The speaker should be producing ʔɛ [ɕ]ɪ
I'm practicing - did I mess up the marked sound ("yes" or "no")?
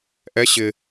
no